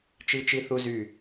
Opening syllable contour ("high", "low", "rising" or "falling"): high